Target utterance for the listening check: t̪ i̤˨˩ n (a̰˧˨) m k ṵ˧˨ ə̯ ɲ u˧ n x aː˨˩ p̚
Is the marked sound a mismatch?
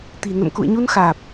yes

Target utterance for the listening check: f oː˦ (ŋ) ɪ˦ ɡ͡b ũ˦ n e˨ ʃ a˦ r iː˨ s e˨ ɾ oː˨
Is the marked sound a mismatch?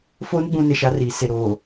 yes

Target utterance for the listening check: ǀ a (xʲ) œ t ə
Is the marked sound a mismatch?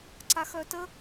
yes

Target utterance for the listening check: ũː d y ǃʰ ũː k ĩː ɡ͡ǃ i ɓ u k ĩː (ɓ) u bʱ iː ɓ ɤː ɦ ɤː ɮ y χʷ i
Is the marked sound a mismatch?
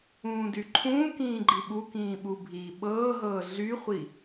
no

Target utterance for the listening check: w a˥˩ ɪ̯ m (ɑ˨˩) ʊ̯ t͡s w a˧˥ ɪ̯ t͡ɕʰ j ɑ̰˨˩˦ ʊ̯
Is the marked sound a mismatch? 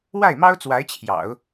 yes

